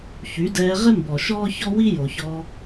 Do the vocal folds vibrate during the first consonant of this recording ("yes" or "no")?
no